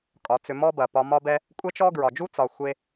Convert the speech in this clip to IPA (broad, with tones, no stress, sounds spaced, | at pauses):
kʼ ɒ˨˦ t͡s ʏ˧ m ɔ˦ b ɐ˨ p ɒ˧ m ɒ˦ b ɛ˦ | kʷʼ ɛ˦ t͡ʃ ɔ˦ ɡ ɹ ɒ˨ d͡ʒ u˦ t͡s ɒ˧ xʷ e˦